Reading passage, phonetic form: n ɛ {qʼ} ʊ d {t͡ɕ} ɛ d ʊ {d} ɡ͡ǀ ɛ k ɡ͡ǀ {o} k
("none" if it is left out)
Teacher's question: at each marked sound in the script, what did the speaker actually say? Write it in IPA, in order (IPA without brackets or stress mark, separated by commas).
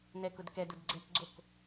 k, k, d, o